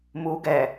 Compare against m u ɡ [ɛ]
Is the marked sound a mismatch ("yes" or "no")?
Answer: no